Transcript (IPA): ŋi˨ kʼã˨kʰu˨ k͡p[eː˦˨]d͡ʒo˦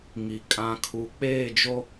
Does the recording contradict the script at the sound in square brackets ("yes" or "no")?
no